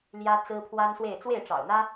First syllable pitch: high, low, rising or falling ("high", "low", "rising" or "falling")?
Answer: high